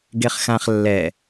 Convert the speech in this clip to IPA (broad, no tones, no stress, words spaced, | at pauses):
ɡeχxãχ lːɛ